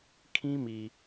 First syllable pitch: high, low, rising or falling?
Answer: high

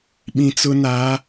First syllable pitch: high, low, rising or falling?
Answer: low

